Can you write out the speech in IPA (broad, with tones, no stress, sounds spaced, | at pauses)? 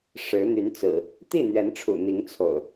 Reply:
ʂ ɻ̩˨˦ n̪ y˨˦ n t͡s ɹ̩˨˩ | t̪ i˥˨ n̪ ɥ ɛ˨˦ n ʈ͡ʂʰ ṵ˨˩ n̪ i˨˦ ŋ t͡sʰ o̰˨˩ ʊ̯